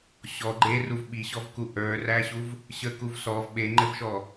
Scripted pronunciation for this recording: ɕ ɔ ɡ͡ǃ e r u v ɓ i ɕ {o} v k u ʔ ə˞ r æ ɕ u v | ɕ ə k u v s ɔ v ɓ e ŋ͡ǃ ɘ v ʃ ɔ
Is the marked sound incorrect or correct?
incorrect